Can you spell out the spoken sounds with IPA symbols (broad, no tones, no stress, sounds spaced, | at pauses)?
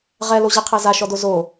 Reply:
ʁ ɛ l o ʑ i qʰ e z a ʃ ɔ d o z o